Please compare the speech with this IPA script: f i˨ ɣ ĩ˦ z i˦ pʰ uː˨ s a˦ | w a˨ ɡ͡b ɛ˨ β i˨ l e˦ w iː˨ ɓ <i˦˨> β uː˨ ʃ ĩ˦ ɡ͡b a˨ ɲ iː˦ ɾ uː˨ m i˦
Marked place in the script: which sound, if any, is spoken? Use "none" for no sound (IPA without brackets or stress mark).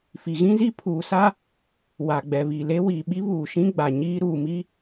i˦